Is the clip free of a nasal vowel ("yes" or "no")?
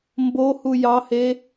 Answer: yes